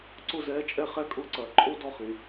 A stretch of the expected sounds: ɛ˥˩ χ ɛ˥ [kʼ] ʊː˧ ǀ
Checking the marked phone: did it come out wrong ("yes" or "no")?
no